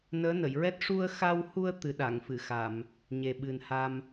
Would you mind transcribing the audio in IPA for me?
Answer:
n əː˧˥ n ə˨˩˨ j ɹ ɛ˦˥ t̚ ʂ u˧ ə̯ x a˧ w h u˧ ə̯ t̪ ɨ˨˩˦ ɗ a˨˩˨ ŋ f ɨ˨˩˨ x a˨˩˨ m | ɲ e˨˩ ɓ ɨ˨˩ n h a˧ m

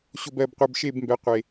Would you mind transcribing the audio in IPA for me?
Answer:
ɕ o˨ b ɜ˨ b qʷ ɘː˨ b ʃ e˦˨ b m b ɛ˩˥ qʷ e˨

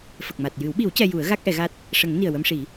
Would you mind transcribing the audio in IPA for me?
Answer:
f ə˨˩ k̚ m a˨˩ t̚ j ɨ˨˩˦ w ɓ i˨˩˦ w c ɛ˧ j u˨˩˦ ə̯ ɣ a˦˥ k̚ ʔ ɛ˨˩˦ ɣ a˦˥ t̚ | ʂ ə˨˩˦ ŋ n i˨˩ ə̯ w ə˧ m ʂ i˨˩˦

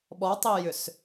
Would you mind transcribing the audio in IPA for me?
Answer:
ɓ ɔ tˤ i j ʏ s

